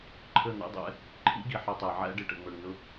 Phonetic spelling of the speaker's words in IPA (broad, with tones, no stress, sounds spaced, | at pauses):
ǃʰ ə˦˨ n̪ ɛ̰˦ dˤ ɛ̰˧ | ǃʰ ḭ˦ ɡ i˨ ħ ɑ˧ tˤ æ˨ ʕ æ̰˦ ɖ ɪ˨ ʈ ə̰˨ ŋ͡m ə˞˨ ŋ n ʊ˦